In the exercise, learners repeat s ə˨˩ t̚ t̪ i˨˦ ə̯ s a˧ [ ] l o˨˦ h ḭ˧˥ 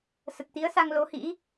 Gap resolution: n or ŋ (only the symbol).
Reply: ŋ